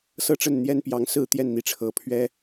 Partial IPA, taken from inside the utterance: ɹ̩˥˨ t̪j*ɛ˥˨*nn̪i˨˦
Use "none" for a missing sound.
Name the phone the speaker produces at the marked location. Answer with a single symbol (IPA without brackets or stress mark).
ɛ˥˨